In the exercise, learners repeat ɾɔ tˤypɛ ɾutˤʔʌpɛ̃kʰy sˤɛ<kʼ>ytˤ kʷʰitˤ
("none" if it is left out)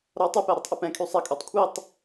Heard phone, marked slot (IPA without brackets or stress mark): kʼ